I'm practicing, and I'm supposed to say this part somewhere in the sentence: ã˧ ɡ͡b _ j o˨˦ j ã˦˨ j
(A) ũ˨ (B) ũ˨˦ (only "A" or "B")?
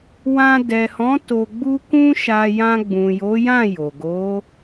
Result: A